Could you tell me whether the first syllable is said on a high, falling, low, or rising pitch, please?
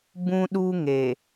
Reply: high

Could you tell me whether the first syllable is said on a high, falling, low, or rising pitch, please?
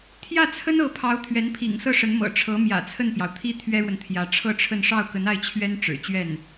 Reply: falling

